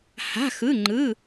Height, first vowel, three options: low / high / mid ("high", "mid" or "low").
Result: low